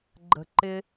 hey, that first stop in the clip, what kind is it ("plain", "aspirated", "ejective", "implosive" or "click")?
click